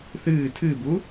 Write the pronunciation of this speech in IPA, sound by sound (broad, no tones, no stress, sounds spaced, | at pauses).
θ ɨː tʰ ɨ b u